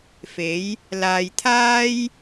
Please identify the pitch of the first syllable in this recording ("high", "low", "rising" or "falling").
rising